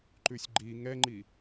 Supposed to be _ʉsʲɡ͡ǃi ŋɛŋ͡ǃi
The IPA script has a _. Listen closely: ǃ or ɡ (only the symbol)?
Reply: ǃ